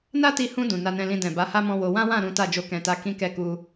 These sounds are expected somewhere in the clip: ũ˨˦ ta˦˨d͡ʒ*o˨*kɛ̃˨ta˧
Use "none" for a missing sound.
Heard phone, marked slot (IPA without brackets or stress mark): o˧